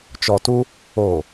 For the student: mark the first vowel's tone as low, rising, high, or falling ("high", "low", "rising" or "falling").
low